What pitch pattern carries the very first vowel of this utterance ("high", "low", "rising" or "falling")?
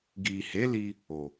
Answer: low